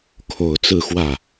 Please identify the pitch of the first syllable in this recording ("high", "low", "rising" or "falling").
low